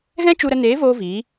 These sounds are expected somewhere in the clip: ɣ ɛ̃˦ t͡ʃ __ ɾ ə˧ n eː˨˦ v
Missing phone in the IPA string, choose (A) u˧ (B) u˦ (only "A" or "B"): A